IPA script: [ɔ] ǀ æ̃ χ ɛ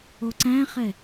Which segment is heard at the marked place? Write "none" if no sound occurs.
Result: o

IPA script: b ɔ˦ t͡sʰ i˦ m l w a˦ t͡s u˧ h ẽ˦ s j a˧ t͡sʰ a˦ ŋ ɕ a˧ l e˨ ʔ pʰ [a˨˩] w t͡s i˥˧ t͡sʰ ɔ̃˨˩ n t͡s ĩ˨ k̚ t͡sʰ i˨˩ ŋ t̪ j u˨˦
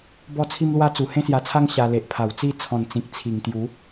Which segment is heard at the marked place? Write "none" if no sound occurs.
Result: a˨˩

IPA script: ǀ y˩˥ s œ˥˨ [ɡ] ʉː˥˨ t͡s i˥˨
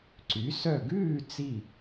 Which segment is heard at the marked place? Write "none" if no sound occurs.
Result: ɡ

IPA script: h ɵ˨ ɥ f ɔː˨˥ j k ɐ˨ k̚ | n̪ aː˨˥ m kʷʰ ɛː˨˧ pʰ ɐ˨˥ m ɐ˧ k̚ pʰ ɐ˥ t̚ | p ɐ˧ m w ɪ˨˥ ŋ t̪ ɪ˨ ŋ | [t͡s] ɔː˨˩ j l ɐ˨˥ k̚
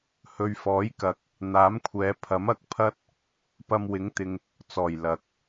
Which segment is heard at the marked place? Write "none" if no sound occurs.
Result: t͡s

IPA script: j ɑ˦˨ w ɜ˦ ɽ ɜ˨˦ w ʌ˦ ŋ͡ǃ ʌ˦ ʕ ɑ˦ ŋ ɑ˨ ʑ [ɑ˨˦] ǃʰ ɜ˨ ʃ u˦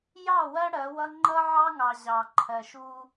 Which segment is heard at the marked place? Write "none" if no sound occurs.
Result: ɑ˨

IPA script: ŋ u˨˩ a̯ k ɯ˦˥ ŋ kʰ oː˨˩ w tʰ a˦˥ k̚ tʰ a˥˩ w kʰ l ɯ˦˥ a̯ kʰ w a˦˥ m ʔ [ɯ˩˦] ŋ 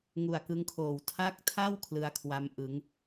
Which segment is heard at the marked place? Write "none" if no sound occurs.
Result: ɯ˩˦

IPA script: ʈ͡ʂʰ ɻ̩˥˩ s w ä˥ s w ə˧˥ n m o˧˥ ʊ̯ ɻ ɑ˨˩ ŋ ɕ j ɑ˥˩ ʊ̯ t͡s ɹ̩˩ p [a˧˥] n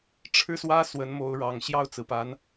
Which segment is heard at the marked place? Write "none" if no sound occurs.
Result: a˧˥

